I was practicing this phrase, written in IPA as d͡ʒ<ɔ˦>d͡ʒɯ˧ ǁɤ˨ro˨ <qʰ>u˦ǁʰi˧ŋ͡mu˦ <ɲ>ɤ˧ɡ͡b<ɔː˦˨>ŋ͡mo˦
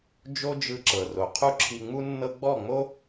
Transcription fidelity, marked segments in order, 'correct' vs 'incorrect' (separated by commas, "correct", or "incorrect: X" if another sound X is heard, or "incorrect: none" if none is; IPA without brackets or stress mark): incorrect: o˦, correct, incorrect: nː, incorrect: ɔ˦˨